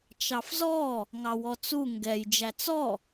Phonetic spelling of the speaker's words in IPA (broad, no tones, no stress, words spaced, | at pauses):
t͡ʃɑfzɔ | ŋɑwɔt͡su ŋɡɛj d͡ʒæt͡sɔ